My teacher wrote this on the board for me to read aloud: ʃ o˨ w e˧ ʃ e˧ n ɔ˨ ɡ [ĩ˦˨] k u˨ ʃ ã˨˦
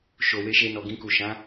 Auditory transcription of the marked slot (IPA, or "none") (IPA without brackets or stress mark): ĩ˧